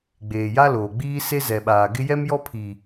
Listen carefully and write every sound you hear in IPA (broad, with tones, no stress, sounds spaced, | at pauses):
ɡ͡b eː˨ j a˦ l oː˨ ɡ͡b iː˦ s e˦ z ɛ˨ ɓ aː˨ ɡ ɪ˦ j ɛ˦ m j ɔ˦ pʰ iː˨